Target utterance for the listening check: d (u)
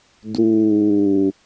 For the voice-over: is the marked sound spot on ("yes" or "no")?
no